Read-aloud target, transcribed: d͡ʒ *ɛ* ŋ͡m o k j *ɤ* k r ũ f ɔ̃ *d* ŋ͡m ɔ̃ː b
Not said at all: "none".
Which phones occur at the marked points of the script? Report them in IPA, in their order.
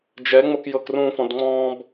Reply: ɛ, ɤ, d

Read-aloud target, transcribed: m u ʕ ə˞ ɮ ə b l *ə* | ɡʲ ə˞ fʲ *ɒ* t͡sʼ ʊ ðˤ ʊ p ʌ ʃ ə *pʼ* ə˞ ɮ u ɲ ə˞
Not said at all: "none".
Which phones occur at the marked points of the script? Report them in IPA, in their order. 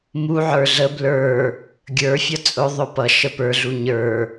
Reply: ə˞, ʌ, p

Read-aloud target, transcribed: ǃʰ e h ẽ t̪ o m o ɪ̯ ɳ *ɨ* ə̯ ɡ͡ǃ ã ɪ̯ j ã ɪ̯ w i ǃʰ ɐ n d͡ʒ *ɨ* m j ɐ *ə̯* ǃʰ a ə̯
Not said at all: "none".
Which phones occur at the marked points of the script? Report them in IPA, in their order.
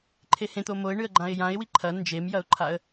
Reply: ɨ, e, ʊ̯

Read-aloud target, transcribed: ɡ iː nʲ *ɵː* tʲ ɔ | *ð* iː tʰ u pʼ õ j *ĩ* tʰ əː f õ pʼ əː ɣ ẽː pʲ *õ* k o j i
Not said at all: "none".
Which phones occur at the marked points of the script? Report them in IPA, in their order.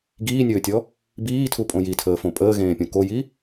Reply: ɵː, b, i, õ

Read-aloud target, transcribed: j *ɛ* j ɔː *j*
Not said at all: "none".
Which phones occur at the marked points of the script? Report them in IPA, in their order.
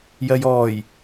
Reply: ɜ, j

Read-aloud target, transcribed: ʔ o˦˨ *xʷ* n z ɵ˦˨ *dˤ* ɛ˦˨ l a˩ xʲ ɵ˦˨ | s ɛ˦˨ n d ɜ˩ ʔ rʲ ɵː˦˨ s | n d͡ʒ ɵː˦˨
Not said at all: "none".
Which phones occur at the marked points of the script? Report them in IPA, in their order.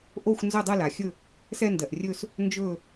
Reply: xʷ, dˤ

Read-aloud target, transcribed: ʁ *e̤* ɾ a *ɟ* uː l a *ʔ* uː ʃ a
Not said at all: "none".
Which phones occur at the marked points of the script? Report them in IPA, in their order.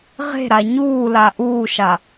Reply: e̤, ɲ, ʔ

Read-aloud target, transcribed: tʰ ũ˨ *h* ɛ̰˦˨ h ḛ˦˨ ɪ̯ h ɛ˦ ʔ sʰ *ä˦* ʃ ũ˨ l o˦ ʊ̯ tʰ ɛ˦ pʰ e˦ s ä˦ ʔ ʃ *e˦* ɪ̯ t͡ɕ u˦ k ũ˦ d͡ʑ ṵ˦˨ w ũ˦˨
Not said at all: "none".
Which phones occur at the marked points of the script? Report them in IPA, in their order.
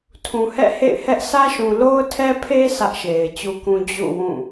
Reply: h, ä˦, e˨

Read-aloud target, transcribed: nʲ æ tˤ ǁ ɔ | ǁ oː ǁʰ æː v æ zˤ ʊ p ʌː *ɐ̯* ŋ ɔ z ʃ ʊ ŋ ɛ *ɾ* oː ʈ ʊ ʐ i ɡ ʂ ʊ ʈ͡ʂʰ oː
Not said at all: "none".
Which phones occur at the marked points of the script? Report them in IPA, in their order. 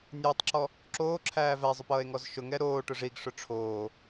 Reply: e̯, ɾ

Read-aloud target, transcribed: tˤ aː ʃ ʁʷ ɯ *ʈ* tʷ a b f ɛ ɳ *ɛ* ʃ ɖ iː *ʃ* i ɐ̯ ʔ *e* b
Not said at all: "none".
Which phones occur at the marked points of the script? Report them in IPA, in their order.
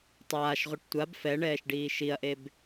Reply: ʈ, ɛː, ʃ, e

